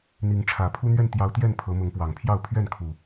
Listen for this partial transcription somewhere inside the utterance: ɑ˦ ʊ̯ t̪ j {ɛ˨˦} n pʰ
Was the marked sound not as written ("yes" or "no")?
yes